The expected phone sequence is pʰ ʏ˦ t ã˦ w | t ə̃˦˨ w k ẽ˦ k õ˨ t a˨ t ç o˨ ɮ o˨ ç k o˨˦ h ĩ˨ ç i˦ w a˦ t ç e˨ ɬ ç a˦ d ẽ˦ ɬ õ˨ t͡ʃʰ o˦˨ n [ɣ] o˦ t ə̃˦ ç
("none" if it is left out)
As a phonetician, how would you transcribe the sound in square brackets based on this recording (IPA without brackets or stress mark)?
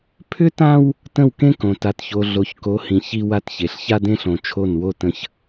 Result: w